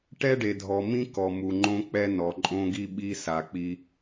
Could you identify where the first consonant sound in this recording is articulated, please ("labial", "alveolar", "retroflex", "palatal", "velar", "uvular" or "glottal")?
retroflex